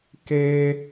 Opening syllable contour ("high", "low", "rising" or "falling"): low